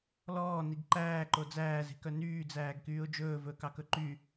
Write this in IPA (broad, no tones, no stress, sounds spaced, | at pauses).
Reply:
l ɔː n i ɡ ǃ æː ǃ o d͡z æː z e̤ k œ n yː d͡z æː ɡ k yː ʊ̯ d͡ʒ ɵː v ɵː k ɑ k ɵ ǃ y